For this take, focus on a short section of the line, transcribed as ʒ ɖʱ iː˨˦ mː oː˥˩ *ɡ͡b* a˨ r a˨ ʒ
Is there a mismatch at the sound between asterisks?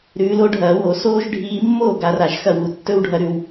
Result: yes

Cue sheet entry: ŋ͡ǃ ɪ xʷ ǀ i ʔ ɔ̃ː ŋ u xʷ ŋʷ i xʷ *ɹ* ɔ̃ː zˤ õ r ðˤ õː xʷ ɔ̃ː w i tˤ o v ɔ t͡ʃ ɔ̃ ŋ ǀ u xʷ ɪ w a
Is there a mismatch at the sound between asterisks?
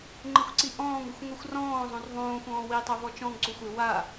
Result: yes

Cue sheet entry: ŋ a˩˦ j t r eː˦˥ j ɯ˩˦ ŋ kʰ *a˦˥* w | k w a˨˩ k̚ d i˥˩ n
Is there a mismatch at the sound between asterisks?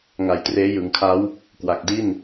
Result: no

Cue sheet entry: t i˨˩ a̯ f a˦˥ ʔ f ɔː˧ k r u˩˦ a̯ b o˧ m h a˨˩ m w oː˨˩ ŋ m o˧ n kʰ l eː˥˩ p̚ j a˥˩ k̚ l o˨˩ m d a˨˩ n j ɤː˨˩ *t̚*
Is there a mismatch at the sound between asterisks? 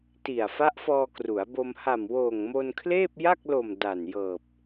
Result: yes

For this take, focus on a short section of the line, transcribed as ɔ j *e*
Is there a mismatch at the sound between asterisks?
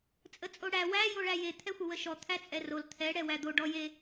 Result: no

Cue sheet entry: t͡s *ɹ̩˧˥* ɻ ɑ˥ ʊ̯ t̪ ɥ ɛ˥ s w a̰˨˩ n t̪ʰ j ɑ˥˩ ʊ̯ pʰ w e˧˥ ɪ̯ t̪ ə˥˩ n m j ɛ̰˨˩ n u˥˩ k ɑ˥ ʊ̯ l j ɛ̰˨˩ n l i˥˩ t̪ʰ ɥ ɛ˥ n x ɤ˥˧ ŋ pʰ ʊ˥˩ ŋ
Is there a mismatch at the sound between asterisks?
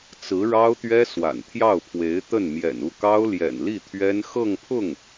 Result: no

